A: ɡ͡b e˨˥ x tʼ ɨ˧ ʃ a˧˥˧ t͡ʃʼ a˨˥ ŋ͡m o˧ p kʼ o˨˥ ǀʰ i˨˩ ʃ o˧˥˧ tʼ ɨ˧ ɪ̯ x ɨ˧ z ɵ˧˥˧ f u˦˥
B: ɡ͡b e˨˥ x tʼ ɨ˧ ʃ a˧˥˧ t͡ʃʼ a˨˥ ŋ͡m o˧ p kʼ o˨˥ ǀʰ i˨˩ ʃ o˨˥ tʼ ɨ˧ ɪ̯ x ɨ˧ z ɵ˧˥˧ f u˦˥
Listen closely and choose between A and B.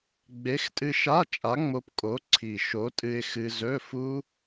B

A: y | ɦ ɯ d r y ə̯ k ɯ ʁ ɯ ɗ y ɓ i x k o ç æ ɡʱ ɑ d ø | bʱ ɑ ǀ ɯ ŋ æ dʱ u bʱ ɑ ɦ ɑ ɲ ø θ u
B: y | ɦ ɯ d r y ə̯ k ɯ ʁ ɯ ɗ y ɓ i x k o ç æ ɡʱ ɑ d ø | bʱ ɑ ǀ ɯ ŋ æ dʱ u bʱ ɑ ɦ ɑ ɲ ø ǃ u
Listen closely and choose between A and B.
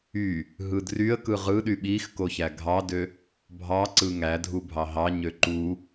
B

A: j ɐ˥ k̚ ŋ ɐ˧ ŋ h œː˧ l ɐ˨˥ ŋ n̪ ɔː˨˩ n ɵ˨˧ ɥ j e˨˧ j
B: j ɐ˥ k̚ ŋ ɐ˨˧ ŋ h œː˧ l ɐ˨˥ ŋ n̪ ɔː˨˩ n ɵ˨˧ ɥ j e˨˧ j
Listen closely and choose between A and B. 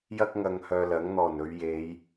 A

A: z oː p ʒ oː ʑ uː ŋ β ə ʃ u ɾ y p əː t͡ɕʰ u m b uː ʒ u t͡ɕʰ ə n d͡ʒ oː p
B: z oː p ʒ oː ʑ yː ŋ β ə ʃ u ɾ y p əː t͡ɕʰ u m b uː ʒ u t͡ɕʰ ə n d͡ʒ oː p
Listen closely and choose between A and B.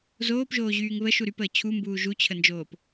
B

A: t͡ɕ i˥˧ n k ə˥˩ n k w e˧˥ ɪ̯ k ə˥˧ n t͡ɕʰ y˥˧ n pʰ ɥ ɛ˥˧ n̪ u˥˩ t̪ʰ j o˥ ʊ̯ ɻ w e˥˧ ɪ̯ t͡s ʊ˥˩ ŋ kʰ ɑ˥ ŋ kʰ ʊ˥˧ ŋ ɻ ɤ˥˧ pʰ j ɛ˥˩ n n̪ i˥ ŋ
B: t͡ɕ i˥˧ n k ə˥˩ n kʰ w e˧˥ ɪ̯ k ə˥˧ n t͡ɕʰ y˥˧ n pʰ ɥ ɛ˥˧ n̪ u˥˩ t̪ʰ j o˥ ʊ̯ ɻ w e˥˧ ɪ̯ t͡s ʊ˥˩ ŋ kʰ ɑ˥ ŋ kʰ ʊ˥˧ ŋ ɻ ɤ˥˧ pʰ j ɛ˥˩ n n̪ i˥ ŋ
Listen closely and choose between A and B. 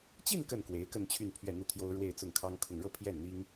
A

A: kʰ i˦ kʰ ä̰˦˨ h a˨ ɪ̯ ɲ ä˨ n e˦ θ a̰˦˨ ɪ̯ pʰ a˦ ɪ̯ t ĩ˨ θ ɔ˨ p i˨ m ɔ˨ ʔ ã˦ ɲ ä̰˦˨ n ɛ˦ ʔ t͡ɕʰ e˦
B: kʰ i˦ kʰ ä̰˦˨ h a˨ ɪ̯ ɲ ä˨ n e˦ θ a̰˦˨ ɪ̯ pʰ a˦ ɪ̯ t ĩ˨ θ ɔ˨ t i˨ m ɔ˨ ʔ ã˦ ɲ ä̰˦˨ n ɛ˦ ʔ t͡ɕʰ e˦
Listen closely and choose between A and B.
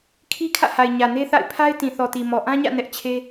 B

